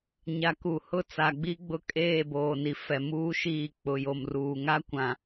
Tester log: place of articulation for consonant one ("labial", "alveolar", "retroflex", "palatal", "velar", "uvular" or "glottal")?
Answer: palatal